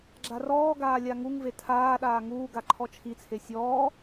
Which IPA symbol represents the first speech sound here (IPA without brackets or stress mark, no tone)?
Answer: ɡ͡ǁ